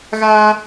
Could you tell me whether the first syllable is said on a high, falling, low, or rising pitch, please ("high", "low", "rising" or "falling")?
high